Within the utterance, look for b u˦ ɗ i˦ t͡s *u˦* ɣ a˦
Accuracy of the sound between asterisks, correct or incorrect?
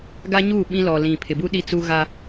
correct